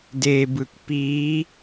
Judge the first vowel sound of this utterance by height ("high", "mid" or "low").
mid